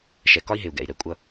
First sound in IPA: ʃ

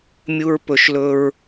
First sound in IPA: mʲ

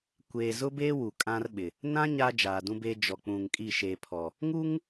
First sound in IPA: kʷ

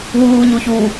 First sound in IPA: w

